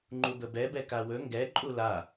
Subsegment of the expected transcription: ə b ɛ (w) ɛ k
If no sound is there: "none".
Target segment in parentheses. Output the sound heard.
b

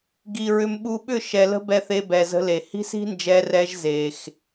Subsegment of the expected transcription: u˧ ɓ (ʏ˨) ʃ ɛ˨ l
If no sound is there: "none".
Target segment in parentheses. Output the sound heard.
ʏ˦˨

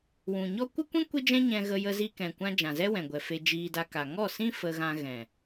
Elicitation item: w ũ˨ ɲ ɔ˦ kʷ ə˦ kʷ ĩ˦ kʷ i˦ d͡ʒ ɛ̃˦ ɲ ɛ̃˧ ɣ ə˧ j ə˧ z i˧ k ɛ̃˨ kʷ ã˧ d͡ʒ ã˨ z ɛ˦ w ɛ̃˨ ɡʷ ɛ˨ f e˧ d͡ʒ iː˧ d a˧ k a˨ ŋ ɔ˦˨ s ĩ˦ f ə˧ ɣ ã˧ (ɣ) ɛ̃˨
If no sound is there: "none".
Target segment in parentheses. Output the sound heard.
ɣ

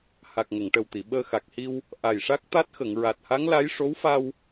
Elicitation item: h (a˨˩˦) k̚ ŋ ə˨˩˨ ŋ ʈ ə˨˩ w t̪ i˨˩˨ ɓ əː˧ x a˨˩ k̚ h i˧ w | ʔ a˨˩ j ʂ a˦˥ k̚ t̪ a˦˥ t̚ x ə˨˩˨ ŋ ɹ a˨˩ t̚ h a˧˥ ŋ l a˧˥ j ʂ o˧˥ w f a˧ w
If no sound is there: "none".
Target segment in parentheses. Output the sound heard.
a˨˩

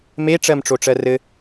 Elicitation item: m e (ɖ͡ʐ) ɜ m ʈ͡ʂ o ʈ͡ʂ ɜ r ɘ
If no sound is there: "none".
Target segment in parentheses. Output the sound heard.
ʈ͡ʂ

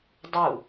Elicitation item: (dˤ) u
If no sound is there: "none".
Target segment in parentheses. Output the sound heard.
dˤ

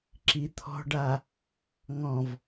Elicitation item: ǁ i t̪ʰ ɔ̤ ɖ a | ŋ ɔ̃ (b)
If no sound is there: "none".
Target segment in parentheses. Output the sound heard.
v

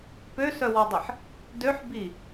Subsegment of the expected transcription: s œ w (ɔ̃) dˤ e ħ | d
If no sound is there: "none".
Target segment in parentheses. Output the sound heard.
ɔ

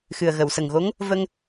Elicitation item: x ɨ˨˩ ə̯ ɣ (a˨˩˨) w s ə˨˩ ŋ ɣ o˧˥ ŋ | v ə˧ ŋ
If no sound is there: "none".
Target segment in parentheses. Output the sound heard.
ə˨˩˨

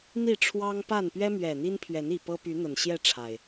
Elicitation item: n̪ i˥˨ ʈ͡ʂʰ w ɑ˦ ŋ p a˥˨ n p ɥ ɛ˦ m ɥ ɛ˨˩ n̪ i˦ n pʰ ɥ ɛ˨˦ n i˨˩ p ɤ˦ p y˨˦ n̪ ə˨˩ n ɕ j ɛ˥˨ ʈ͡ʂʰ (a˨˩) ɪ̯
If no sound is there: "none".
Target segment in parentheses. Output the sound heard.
a˨˩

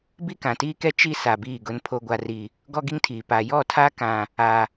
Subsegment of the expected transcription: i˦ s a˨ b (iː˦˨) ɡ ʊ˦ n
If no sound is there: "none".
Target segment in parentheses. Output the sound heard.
iː˦˨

